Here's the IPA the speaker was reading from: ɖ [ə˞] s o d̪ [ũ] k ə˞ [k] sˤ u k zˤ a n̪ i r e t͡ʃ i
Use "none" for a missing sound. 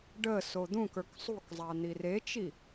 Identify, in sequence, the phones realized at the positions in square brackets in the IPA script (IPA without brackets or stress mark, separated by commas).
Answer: ə, ũ, k